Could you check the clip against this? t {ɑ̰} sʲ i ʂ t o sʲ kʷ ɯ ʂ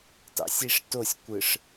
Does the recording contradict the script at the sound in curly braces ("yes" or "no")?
no